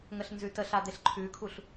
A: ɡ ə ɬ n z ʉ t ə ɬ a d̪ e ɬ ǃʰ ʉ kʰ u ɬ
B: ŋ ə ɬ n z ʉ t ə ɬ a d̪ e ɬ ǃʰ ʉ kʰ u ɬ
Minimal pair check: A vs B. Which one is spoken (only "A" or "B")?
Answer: B